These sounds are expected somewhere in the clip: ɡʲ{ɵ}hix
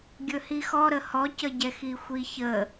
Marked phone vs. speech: correct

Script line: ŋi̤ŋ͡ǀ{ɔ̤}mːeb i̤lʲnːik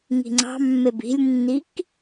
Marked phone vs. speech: incorrect: ɑ̤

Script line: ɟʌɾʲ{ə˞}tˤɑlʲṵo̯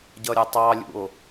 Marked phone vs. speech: incorrect: ə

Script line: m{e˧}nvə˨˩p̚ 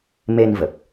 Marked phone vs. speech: correct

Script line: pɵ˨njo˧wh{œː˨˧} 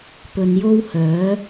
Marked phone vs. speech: correct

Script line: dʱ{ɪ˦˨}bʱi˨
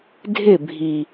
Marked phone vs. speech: correct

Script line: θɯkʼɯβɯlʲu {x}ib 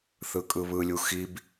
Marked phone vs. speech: correct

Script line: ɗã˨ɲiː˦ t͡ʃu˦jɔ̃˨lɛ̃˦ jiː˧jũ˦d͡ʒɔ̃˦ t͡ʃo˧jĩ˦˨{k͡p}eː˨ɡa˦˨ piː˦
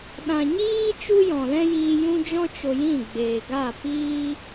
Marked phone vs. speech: incorrect: ɡ͡b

